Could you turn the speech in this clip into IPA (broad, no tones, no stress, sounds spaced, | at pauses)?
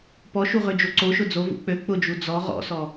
p ɔ ʃ u ʁ ø d͡ʒ o ǀ o ʃ ʊ d͡z o v ṵ k͡p ø k͡p ʊ d͡ʒ u d͡z ɔ ʁ ɔ̰ s ɔ